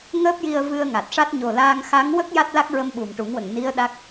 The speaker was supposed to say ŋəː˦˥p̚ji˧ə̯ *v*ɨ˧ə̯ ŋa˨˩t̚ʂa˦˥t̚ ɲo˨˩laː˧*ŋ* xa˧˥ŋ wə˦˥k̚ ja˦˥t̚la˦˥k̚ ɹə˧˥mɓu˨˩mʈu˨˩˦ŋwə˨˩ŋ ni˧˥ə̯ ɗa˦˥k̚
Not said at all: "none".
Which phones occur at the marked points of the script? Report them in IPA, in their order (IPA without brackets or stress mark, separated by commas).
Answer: v, ŋ